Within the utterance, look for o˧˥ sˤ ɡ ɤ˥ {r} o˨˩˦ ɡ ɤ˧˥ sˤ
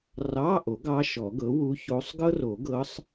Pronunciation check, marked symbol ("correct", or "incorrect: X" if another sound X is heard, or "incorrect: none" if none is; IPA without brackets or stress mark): correct